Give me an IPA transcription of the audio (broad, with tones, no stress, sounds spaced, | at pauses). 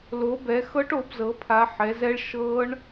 l o˨˦ b ɛ˨˦ x ɤ˦˥ ʈ o˨˦ b z ɤ˨˦ pʰ a˨˦ ħ ɛ˨˦ z ɛ˦˥ ɭ ʃ ɤ˦˥ ɳ